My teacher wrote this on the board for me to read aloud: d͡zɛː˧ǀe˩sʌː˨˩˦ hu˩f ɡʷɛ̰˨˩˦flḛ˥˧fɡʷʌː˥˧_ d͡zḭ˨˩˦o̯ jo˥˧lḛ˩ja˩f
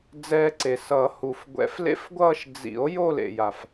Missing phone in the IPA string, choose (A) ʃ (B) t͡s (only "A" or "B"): A